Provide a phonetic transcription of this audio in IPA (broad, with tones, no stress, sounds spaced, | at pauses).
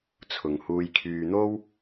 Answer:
t͡sʰ ʊ˨ ŋ h uː˧ j kʰ yː˨ n̪ o˥ w